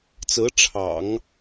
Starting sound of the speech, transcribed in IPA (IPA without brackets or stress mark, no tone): t͡s